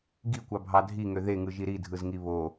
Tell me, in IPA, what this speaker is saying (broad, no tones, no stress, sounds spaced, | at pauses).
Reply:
ɡ i kʷ ɑ bʱ ɑ dʱ i ŋ ø ð e ŋ ɯ ʒ i ɾ i dʱ ɯ z ŋ i β o